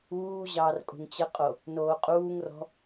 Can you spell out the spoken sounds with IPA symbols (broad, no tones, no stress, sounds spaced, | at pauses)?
uː ʑ ɑː r kʼ ṳ ŋ t͡ɕ ə qʼ o | n oː qʼ uː ŋ r ɔ̤